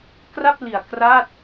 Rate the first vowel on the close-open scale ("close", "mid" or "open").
open